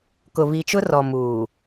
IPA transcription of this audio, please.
k ʊ˨ β i˨ t͡ʃ ʊ˦ r ɔ˨ m uː˨

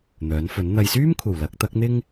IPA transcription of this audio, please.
n̪ œː˨˥ n f ɵ˨˥ n n̪ ɐ˨ j s yː˥ m kʷʰ ɐ˨˩ w l ɐ˨˥ k̚ t̪ ɐ˨˥ k̚ n̪ ɪ˥ ŋ

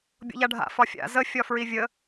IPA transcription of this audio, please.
bʲ o̰ ʎ a ɖʱ a̰ f ɒ fʲ a̰ z ə fʲ ɒ f ɹ i vʲ ə

